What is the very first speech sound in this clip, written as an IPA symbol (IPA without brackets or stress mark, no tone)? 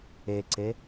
e